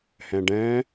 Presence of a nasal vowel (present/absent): present